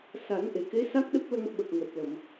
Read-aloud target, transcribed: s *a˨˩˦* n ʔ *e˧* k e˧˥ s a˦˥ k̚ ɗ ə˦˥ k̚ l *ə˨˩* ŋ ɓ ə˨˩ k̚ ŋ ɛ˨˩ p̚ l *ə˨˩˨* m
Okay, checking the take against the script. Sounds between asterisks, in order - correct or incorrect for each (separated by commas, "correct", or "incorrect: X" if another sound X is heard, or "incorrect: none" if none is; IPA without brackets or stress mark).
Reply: correct, incorrect: e˨˩˨, incorrect: ə˧, correct